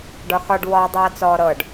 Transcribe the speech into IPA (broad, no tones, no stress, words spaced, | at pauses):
ɖɒxɒɖ wɒ dˤɤːt͡sɔːɾɤɖ